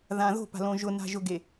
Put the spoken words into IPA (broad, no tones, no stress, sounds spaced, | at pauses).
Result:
ð ã ð o̤ p a̤ l õ ʒ ʊ n a̤ ʒ ʊ ɡ e